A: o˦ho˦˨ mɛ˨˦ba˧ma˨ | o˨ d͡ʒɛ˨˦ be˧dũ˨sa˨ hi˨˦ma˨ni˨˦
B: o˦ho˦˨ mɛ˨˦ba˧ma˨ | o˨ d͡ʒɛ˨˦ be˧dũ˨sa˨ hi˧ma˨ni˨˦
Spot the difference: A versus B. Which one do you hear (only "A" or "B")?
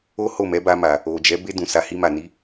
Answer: B